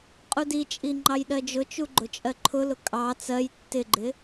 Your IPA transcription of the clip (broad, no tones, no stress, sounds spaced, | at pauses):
qʼ u d i t͡ʃʼ i ŋ͡ǃ ɑ j ɗ ɜ d͡ʒ ʊ t͡ʃ u ɡ͡ǃ ʊ t͡ʃʼ ɜ ǃʰ ʊ l ʊ kʼ ɑ t͡s ɜ j tː ɪ ɡ͡ǃ ɪ